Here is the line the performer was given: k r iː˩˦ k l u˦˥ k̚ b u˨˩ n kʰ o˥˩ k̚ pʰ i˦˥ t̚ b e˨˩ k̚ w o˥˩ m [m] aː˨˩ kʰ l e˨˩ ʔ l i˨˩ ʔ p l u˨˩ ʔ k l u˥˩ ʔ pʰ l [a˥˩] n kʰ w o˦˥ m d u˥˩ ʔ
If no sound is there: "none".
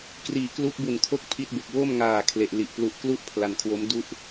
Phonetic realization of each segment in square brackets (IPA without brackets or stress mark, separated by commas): ŋ, a˧